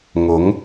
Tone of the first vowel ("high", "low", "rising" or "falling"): rising